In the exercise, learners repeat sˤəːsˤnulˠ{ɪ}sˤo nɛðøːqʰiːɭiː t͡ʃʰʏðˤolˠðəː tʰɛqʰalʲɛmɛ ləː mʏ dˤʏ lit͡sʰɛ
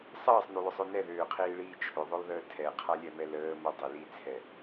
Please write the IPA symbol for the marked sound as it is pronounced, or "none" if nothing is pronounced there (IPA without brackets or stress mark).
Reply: ʏ